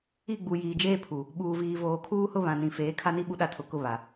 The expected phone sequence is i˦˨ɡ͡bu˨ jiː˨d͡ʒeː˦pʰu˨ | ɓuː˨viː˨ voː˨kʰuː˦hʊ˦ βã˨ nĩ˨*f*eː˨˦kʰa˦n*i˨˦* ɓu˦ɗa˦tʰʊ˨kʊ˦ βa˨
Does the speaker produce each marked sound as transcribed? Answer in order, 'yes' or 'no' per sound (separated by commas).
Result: yes, no